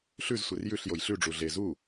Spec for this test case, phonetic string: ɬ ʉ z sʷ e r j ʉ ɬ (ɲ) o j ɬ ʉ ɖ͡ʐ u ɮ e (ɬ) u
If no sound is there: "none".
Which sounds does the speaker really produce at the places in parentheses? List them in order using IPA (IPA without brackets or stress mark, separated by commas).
j, z